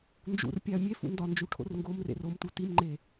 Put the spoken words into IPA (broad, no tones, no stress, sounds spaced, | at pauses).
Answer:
n d͡ʒ ṵ r pʲ æ ɐ̯ mʲ e f ṵ n d ɒ n d͡ʒ u ʈʰ o̰ r ŋ ɡ o m r ḛ r o m t u t i m ŋ͡ǃ e